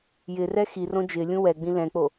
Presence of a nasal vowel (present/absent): present